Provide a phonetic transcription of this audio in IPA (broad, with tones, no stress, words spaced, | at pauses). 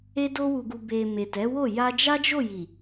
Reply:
e˧do˧wu˨ɡu˨ be˨ me˨tɛ˨˦wo˦˨ ja˧d͡ʒa˦d͡ʒo˦˨ji˨